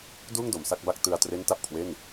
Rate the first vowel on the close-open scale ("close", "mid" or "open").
close